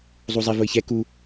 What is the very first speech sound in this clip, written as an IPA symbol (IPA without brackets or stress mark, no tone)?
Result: zˤ